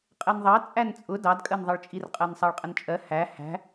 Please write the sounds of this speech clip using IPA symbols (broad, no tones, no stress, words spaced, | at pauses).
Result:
qʼɛnðˤɑ t͡sʼænt͡sʼʊ dɑdkʼɜnðˤʌɭt͡ʃʼir qʼɜnsˤɑɭqʼənt͡ʃʼɜ hæ hæ̤